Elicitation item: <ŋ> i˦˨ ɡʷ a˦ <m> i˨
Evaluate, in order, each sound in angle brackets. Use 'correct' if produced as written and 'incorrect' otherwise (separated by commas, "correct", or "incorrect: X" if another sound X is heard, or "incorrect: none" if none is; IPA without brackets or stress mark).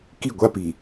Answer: incorrect: k, incorrect: p